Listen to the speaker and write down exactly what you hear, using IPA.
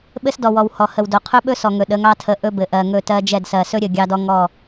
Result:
ɓ ɘ˦ s d ɔ˨ w ɔ˨ w h ɔ˨ h ə˨ w d o˨ qʰ ɵ˦ ɓ ɵ˦ s ɔ˨ ŋ ɵ˨ ɗ ə˨˦ ŋ ɑ˦ tʰ ə˨˦ ʔ ɵ˦ b ɘ˨ ʔ ɜ˨ ŋ ɵ˦˨ t ɜ˦ d͡ʒ ɛ˦˨ d s ɜ˨ s ɵ˦ ɾʲ ɘ˨ ɡʲ ɑ˦ d ɔ˦ ŋ ɔ˦˨

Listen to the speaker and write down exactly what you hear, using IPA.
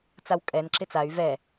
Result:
t͡s a w kʼ ɛ n ǁ ɪ t͡s a y̯ v ɛ

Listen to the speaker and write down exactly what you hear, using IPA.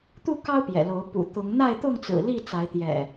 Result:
t̪ u˥˨ k ɑ˦ ʊ̯ p j ɛ̰˨˩ l o˨˦ ʊ̯ p ṵ˨˩ t̪ ʊ˨˦ ŋ n̪ a˥˨ ɪ̯ t̪ ʊ˥˨ ŋ t͡s ɹ̩˨˩ l i˥˨ t͡s a˨˦ ɪ̯ t̪ j ɛ̰˨˩

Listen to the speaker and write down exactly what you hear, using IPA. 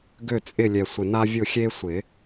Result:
ɡ ø˦˨ t͡sʼ ɪ˦˨ lʲ ɛ˨˩ sʷ ɪ˨˩ n a˦ vʲ ʊ˦˨ xʲ e˦ sʷ ɪ˨˩˦

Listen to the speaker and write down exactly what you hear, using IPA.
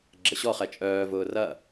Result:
ɡ͡ǁ ə ɕ ɔ χ ɛ t͡ʃʼ œː v ʊː r ɐ

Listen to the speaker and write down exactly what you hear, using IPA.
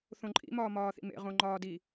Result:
θ õ ǃʼ ḭ m ɒː m ɒː θ ḭ m ḛ ʁ õ ŋ͡ǃ ɒː d i

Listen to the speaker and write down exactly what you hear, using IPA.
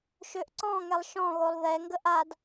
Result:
ʃ ø ʔ ǀ ɔ̃ ŋ ɛ lˠ ʃ ɔ̃ ɣ o lˠ ð ɛ ŋ ɡ ə ʔ a d

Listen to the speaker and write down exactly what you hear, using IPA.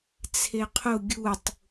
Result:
t͡sʰ e qʰ ʊ ɡʲ u tˤ

